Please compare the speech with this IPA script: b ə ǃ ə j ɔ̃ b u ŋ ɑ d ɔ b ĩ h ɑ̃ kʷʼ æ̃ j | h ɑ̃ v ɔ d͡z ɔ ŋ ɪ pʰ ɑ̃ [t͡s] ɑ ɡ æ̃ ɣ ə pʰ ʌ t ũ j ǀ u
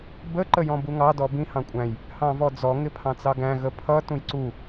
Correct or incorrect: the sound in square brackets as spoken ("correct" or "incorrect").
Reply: correct